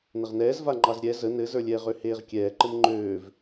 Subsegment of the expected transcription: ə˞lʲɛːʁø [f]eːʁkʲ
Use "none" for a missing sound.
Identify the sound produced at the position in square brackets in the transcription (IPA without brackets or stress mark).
h